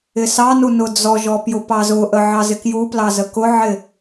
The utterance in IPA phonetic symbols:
ɪsɑnu nʊd͡zɔʒɔ pjʊpɑzʊʔə ʕɑzɪkjuplɑ zəkʊʕɪ

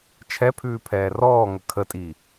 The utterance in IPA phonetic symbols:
t͡ʃʰɛpʰʉːpʰɛː rɔːŋə kʰətʼiː

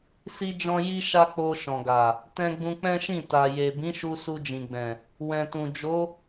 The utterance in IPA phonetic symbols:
si˦d͡ʒɔ̃˦ ji˦ʃa˦k͡po˧ ʃɔ̃˨ɡa˨ | tɛ̃˧ɡ͡bũ˧k͡pɛ̃˦ʃĩ˦˨ ta˨ je˨ bĩ˨˦ʃu˧ su˧d͡ʒĩ˨ɡ͡bɛ̃˨ | wɛ̃˨tũ˨ d͡ʒo˨˦

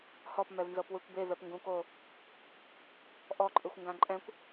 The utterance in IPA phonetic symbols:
hɔpmɛvnzɤpwɯkʷ bevɛpŋɡũko | ʔɔǃʼɯxʷŋɡã ǃʼɛ̃kʷ

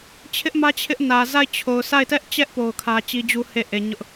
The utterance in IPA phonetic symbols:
t͡ɕʰɪ˦ʔmä˦ t͡ɕʰɪ˦ʔnä˨ za˦˨ɪ̯t͡ɕʰo˨ʊ̯ sa˦˨ɪ̯tɛ˦ʔt͡ɕɛ˦ʔ po˦ʊ̯kʰä˦ t͡ɕi˦d͡ʑu˦he˦˨ʔe˨ ɲʊ˦ʔ

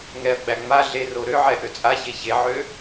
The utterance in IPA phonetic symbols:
ŋɛɐ̯ɡ͡bæ ŋ͡ma ɮero ɾøʕɛ ʔøt͡sʼaçe çeʕø

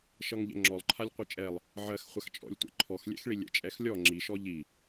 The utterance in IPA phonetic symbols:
ʃʌŋʎɛ̰ŋ͡ǁɔlˠǃʰalʲ qʷɨt͡ʃʼɛlˠ | ʕɜxχʷaxt͡ʃʼɔ̰lʲ tʷɛ̰ǃʰɔxlʲɛ̰xɭi lʲɛ̰t͡ʃʼɛxlʲɔ ŋ͡ǁiʃɔ ʎi

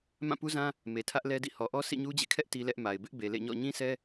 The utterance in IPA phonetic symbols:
mã˦˨pu˦zã˦ | me˨tʰä˦ʔ lɛ˦dḭ˦˨ hɔ˨ʔɔ˦ sʰḭ˦˨ɲu˦d͡ʑḛ˦˨kʰɛ˦ʔ ti˦lɛ˦ʔma˨ɪ̯ bɪ˦ʔbe˨lḛ˦˨ɲɔ̰˦˨ ɲĩ˦sɛ˦

